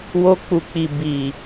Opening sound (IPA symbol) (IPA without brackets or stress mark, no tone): w